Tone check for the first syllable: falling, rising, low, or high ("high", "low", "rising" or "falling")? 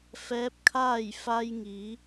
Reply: rising